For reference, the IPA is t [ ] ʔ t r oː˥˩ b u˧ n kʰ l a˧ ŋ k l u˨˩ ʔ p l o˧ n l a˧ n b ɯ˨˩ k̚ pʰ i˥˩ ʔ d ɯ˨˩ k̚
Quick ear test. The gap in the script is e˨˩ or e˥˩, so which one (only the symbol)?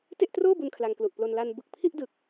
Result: e˥˩